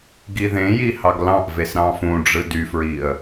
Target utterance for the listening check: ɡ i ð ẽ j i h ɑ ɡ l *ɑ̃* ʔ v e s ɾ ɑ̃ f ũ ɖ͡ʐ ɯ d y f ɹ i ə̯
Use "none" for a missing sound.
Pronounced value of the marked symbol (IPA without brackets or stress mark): ɑ̃